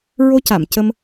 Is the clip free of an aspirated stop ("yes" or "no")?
yes